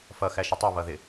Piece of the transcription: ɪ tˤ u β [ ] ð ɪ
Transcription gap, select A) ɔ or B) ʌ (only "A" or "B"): B